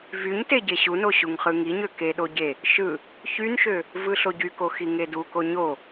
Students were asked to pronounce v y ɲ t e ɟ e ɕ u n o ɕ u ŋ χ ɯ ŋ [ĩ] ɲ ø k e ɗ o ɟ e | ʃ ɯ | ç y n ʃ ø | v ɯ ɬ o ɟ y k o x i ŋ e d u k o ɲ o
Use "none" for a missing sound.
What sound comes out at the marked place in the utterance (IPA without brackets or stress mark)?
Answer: i